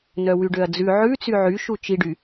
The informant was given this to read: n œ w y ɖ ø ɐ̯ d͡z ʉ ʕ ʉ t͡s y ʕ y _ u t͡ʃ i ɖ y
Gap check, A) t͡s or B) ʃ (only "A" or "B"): B